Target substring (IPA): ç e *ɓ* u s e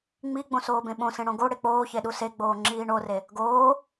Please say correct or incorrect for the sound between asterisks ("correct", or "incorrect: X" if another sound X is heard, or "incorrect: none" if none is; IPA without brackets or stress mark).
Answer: incorrect: ɗ